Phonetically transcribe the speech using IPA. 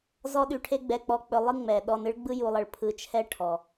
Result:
z ɔ˥ ɗ y˧ ʈʰ e˥ ɡ͡b ɛ˧ k͡p ɔ˧ k͡p ɵ˧ lˠ ɨ˥ ŋ͡m ɛ˩ ɗ ɔ˧ n ɨ˥ ɭ ɡ͡b ɯ˥ j u˧ lˠ ə˧ ɭ pʰ ɯ˧ t͡ʃʰ ɛ˥ ʈʰ ɔ˩

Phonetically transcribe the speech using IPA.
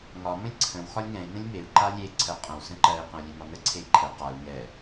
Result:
ŋ ɒ m ə̃ lʲ ǀʰ ə̃ w x ɒ lʲ ŋ ɛ̃ i̯ n ə̃ lʲ m e u̯ ǃ a lʲ e ǀʰ ɜ qʼ ə̃ w s ə̃ ǃ ɜ i̯ q ə̃ u̯ lʲ e m ɒ n ə ǀʰ e i̯ ǃʰ ɛ q a u̯ ŋ ɛ

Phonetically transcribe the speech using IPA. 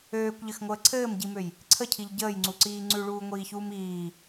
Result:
øː kʷ ʎ ɘ x ŋʷ əː ǀʰ ɘː m ɟ i m ø j | ǀʰ ə cʰ i ʎ ɟ əː j ŋ͡ǀ u ǀ iː ŋ͡ǀ ʉ ɭ uː ŋʷ iː ç uː m iː

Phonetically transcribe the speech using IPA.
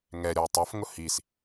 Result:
ŋ ɛ ɾʲ ɔ tˤ ɑ f ŋ ʊ h i s

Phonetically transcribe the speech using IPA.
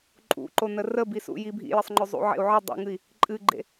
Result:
ǃʼ ṵ ǃ o n ə r ə b i s ṵ j i bʱ ḭ j ə sˤ ŋ͡ǃ ɵ zˤ ṵ ʕ ḛ u̯ ʕ ɨ dˤ ṵ ŋ ɨ i̯ | ǃʼ ɨ ɡ͡ǃ ḛ

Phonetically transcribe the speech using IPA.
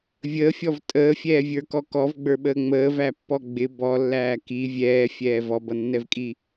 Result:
vʲ əː fʲ ɔ v tʼ əː fʲ ɛː vʲ ə˞ k ɔ k ɔ v ɡ͡b ə˞ ɓ əː ŋ͡m əː v æ pː ɔ ɡ͡b ɪ b ɔ lː æː k i vʲ ɛː fʲ ɛː v ɔ b ʌ nː ɛ v kʼ i

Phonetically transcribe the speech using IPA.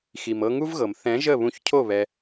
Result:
x i˨ m ɤ˧ ŋ u˦ v ɣ ɤ˨ m θ ɛ̃˨˦ ʒ ə˦˨ β ũ˧ ç cʰ o˦˨ β ɛ˧

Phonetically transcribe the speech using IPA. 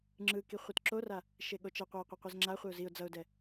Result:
ŋ͡ǁ ɯ k i χʷ ɯ t ǁ o r a | ʃ e ɠ o t͡ʃ ʌ qʷ a ɪ̯ qʷ e qʷ e z ŋ͡ǁ a χʷ e ʊ̯ z i ʊ̯ d͡z ʌ ʊ̯ d ɛ

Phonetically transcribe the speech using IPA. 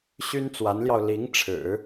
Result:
ɕ y˥ n t͡s w a˧˥ n l j ɑ˧ ʊ̯ l i˧˥ ŋ ʈ͡ʂʰ ɻ̩˨˩˦

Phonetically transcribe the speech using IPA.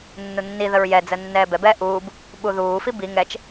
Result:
nː u nː i ð ə ɹ j ɛ d͡z ə nː ɛː b ɛ b ɛː ʔ uː b | ɓ u ð uː f i b i ŋ ɛ t͡ʃ

